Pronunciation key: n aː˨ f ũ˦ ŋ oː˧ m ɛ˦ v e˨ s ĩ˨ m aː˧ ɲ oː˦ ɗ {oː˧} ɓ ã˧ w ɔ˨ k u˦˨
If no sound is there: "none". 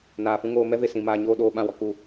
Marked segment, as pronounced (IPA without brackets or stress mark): oː˧